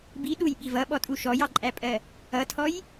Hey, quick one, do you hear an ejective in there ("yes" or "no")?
yes